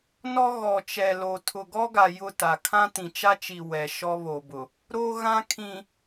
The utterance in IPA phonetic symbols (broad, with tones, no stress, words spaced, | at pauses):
nɔ˦ɣɔ˨t͡ʃɛ˨lo˨ tʰʊ˨ɡɔ˦ɡa˨ jʊ˦˨ta˨ kʰã˦tĩ˨t͡ʃa˦t͡ʃi˨ wɛ˨ ʃɔ˦βo˨bʊ˨ | ɾo˦ ɣã˦kʰĩ˨